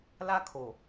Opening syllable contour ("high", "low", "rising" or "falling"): high